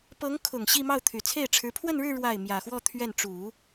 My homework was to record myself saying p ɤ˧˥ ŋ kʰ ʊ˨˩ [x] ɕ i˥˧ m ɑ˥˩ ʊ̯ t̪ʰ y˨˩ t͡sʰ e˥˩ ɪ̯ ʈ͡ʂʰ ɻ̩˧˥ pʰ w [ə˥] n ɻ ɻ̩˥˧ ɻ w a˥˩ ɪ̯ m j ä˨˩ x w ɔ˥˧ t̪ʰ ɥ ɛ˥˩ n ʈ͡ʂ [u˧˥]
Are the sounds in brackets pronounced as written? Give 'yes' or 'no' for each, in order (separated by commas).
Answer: no, no, no